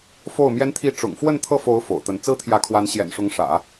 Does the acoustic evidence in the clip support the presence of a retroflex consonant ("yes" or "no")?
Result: yes